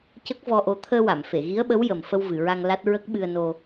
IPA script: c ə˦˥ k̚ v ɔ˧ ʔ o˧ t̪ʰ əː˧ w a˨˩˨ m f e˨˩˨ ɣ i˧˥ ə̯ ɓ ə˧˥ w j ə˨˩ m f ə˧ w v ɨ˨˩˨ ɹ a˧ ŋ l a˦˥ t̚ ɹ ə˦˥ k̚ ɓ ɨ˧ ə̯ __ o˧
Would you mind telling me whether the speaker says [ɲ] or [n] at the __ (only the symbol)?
n